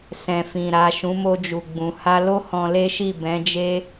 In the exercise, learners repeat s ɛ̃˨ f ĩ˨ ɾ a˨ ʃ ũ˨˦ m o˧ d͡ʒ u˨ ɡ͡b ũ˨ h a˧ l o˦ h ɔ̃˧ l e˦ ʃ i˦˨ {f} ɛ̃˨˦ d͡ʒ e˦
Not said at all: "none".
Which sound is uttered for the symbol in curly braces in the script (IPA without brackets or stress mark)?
b